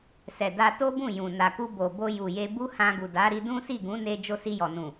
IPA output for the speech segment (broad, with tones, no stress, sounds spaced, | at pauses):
s ɛ˨ d a˧ t o˦ b ũ˦˨ j ũ˨ n a˨ k u˧ b o˨ b o˧ j u˨ j e˧ b u˦ h ã˧ ɡ u˨ d a˨˦ ɾ i˧ d ũ˦ s i˦˨ ɡ ũ˨˦ n e˧ d͡ʒ o˧ s i˧ j ɔ˨ n ũ˨